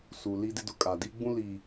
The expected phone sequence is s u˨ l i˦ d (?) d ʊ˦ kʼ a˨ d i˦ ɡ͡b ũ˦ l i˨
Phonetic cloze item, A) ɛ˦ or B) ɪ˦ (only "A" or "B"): B